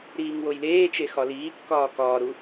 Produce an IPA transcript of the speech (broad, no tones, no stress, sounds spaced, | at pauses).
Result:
ɾ iː ŋ w o j l eː t͡ʃ e x ɒ l iː kː ɒː k ɒː ɾ u